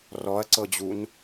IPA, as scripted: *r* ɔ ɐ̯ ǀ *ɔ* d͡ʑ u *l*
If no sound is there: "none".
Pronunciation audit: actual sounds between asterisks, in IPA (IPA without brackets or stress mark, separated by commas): r, ɤ, n